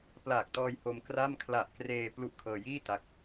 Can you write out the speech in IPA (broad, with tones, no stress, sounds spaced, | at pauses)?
p l aː˨˩ k̚ t ɔː˧ j h o˧ m k r a˥˩ m kʰ l a˨˩ ʔ k r eː˧ p l u˦˥ ʔ kʰ ɤː˧ j iː˥˩ t a˦˥ k̚